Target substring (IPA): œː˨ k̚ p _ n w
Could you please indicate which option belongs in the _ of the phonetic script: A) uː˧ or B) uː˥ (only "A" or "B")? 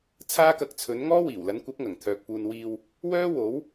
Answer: A